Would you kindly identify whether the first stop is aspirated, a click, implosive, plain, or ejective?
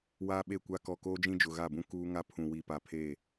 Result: implosive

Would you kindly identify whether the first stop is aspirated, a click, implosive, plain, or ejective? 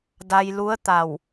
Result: plain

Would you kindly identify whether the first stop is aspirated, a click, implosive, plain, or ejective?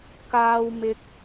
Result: plain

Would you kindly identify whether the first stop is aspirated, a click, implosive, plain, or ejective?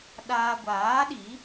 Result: implosive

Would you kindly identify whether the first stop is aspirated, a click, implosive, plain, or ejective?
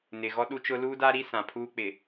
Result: implosive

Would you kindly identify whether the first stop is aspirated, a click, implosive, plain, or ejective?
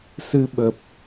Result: implosive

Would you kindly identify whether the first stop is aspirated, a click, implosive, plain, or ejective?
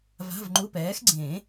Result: click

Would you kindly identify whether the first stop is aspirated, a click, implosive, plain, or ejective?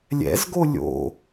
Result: plain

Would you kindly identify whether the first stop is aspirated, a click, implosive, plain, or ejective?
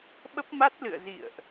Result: implosive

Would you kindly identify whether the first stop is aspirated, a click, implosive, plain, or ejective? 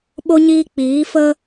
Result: implosive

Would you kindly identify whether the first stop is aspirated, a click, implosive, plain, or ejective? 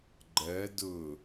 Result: click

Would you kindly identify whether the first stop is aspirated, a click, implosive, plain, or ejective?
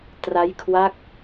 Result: plain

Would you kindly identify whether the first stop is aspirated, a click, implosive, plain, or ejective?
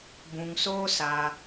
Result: plain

